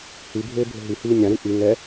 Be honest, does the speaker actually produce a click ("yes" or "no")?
no